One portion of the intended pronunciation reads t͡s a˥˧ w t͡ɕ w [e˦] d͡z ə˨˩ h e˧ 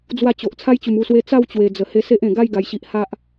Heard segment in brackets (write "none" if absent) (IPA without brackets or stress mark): e˨˩